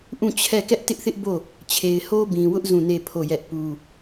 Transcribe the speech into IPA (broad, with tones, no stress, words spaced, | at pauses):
ʔũ˦˨t͡ɕʰɛ˦˨ kɛ˦ʔtɪ˦ʔθɪ˦ʔ bo˦˨ | t͡ɕʰe˨ɪ̯ho˦bĩ˨wʊ˦ʔ zũ˦˨ne˦˨pʰo˦˨jɛ˦ʔ pu˦